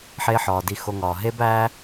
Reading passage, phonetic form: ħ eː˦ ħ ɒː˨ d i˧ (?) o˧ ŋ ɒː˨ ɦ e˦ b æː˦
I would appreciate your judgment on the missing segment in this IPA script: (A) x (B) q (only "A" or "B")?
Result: A